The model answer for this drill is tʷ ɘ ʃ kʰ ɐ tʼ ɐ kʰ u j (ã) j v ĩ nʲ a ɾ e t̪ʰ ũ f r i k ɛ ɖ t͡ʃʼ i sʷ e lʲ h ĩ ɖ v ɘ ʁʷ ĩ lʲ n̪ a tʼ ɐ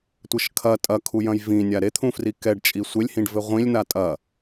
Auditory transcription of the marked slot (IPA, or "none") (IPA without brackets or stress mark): ɐ̃